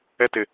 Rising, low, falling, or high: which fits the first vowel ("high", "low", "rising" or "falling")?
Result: high